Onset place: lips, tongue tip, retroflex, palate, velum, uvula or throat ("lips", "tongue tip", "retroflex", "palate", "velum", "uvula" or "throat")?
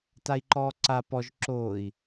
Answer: tongue tip